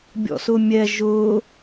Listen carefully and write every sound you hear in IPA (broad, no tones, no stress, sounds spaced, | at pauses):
bʲ ɔ̰ s ʊ mʲ ɛ ʒ ʊ